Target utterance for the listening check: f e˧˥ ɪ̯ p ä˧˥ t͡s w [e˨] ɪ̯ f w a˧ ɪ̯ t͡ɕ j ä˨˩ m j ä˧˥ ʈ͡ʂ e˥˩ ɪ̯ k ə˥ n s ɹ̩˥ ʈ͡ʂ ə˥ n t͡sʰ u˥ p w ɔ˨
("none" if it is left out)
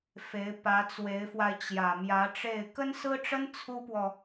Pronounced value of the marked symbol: e˧˥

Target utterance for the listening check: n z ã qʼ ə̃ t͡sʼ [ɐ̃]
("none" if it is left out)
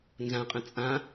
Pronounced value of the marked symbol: ã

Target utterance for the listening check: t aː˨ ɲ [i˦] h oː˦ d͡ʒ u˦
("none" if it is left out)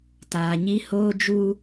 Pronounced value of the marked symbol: i˦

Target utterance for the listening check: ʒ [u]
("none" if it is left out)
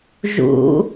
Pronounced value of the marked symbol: ṵ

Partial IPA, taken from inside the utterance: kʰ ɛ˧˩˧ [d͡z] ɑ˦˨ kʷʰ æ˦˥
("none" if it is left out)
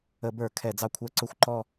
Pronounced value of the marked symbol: d͡z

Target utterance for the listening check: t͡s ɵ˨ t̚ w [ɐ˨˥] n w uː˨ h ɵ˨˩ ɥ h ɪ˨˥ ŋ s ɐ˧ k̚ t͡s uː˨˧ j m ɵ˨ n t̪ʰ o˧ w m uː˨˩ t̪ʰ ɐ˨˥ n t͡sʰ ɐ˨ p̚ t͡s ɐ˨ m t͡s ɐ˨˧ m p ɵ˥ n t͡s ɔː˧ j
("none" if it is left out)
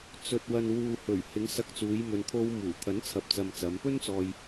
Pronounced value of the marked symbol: ɐ˨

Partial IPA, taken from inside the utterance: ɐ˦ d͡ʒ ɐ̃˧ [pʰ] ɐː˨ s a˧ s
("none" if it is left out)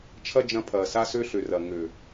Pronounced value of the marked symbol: pʰ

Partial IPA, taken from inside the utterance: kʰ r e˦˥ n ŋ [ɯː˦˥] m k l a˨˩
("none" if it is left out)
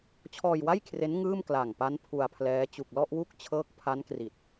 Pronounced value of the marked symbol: ɯː˥˩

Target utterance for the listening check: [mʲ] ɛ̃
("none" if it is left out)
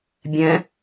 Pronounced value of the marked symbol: bʲ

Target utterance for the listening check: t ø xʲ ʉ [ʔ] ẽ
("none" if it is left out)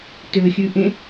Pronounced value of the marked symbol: ʔ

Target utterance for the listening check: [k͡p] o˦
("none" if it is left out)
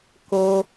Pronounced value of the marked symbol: k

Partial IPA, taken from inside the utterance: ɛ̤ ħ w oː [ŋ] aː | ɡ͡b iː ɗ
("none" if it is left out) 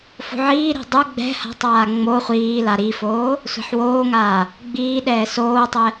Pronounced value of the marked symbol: ŋ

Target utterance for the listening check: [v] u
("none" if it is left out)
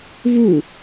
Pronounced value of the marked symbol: v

